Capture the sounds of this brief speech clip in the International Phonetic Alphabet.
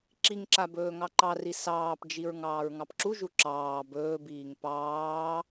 ǁ i ŋ ǁ a b ɵː ŋ ɑ ǃ ɑ r i s ɑː p d͡ʒ i ɹ ŋ ɑː ɹ ŋ ɑ p ǁ u ʒ u ǁ ɑː b ɵː b iː ŋ p ɑː

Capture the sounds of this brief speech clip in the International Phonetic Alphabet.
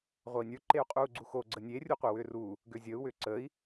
ʁʷ ɐ i̯ nʲ ə˞ ǃ e u̯ qʼ uː ɡ͡ǀ u x o ɡ͡ǀ ə nʲ e rʲ u qʷ œ w ʏː r uː | ɡ ʏː zʲ əː u̯ w ʏː ǀ əː i̯

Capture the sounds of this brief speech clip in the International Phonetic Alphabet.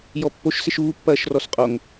j ɔ pː o ʃ s ɪ ʃ uː pː ɐː ʃ r ɔ s qʼ o ŋ

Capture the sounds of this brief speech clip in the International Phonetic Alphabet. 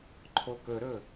ǃʰ o k ɵ ɾ ɵ

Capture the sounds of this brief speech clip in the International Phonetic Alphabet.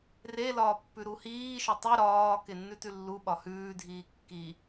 r e l ɒː pː ʉ ɾ u h iː ʃ ɒ tˤ i ɾ ɒː k e nː ʉ t ʉ lː u ɓ ɒ h ʉː dʱ iː kː i

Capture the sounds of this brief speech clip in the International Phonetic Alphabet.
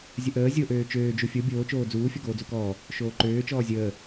zʲ ə ʔ əː zʲ o ʔ øː t͡ʃ øː d͡ʒ u fʲ o bʲ oː t͡ʃ oː d͡z uː fʲ ɔ ɡ oː d͡z u k ɔː | ʃ oː ǃ øː t͡ʃ ɔː zʲ əː

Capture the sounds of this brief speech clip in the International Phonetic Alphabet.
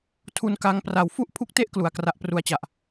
tʰ u˧ n k a˧ ŋ p r a˨˩ w f u˥˩ ʔ pʰ u˦˥ k̚ t e˦˥ ʔ k l u˩˦ a̯ k r a˦˥ ʔ p r u˦˥ a̯ t͡ɕ a˨˩ ʔ

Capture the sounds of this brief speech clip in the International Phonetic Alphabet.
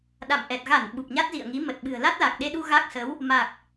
ɗ a̰˧˨ m ʔ ɛ˨˩ t̚ ɣ a˧˩ n ɓ u˨˩ p̚ ɲ a˦˥ t̚ z ḭ˧˨ ə̯ ŋ i˨˦ m ə˨˩ t̚ ɓ ɨ̤˨˩ ə̯ l a˦˥ t̚ l a˨˩ k̚ ɗ e˧ ɗ u˧ ɣ a˦˥ k̚ s ə˨˦ w | m a˨˩ k̚

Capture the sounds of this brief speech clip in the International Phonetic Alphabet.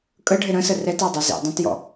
kʼ ə ɖʱ ɪ ɾ ə̃ s ə r ɛ t æ dˤ ɑ z ḭ dˤ ũ t j ɔ̰

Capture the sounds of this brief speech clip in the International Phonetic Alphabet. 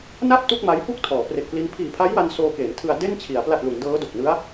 n a˥˩ p̚ t u˥˩ k̚ m a˦˥ j p u˥˩ k̚ tʰ ɔː˩˦ p r e˨˩ k̚ p l i˦˥ n pʰ iː˨˩ pʰ a˦˥ j w a˧ n s oː˧ k eː˩˦ n tʰ ɯ˧ a̯ d e˥˩ n t͡ɕʰ i˩˦ a̯ p l a˨˩ t̚ l u˩˦ n d ɤː˦˥ d o˨˩ k̚ n ɯ˦˥ a̯

